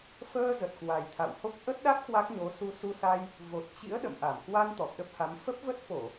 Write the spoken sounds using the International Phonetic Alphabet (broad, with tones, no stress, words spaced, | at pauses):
fəː˧ zə˨˩t̚kwa˨˩jt̪ʰa̰˧˨who˦˥k̚ ʔə˦˥t̚ɗa˦˥t̚ kwa˦˥k̚ɲo˨˦ su˧su˧sa˧j | vo˨˩t̚t͡ɕḭ˧˥ə̯ ɗə̰˧˨mʔa˧˩m kwa˧n t̪ɔ˨˩p̚ɗə˦˥p̚ha˨˦m fə˦˥p̚və˦˥t̚fo˧˩˨